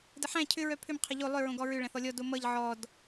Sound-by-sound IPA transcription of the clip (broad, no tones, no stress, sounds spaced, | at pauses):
d ə ħ æ̃ cʰ ʏ ɹ œ pʰ ʏ m qʰ ʌ ʎ o lˠ ʏ ɹ õ ɡ ɔ ɹ ʏ ɭ æ̃ θ ɔ lʲ ɔ d o m ʌ ʎ ʕ ɔ d